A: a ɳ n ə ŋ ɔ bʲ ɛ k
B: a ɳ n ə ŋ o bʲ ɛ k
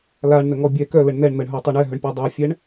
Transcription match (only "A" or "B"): A